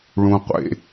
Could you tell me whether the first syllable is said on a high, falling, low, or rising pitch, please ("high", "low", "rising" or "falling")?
high